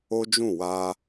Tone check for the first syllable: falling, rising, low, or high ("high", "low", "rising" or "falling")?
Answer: high